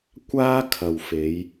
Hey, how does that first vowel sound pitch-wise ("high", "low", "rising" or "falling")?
high